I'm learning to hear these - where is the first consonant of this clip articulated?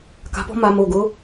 velum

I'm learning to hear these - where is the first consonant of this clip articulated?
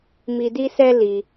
lips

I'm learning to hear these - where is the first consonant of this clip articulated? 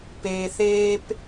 lips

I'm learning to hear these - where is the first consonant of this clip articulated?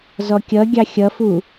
tongue tip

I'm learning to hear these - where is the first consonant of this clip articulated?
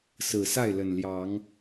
tongue tip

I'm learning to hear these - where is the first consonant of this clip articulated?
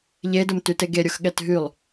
palate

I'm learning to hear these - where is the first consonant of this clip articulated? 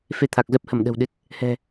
lips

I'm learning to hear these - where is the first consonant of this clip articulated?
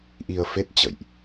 throat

